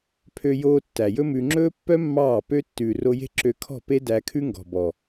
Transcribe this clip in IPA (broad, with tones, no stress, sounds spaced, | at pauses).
pʰ ø˧ j oː˧ tː æ˨ j ɵ˦ m ʉ˧ ŋ͡ǁ ɵː˦ pː œ˦ mː ɑː˦˨ p ø˦ tː ʉː˨ r o˧ j e̤˦ ǁ ø˧ kʰ ɔ̤˦˨ p e˦ d æ˧ kʰ ʉ˦ ŋ ɡ ɔ̤˨ b ɔ˨